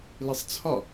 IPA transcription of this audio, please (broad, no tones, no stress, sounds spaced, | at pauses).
l i sˤ t͡sʰ ɒ